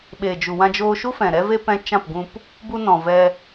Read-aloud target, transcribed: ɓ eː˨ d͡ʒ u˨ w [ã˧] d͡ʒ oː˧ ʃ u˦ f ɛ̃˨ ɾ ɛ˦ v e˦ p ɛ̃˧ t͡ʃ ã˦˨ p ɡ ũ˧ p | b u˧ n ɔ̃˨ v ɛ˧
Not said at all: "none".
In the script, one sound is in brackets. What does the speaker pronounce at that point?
ã˧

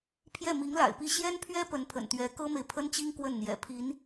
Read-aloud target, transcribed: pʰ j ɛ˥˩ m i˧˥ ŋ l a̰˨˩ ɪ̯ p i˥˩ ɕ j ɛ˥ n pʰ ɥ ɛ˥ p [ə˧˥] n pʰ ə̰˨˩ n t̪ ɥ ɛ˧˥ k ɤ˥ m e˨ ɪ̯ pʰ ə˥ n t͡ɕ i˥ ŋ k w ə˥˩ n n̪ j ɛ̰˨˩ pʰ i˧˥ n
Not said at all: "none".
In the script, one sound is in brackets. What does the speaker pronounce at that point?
ə˧˥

